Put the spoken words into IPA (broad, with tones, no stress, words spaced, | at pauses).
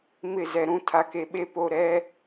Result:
mɪ˦˨zɛ˨ɾũ˦ tʰa˨ke˨ɓe˦po˦˨ ɾɛ˦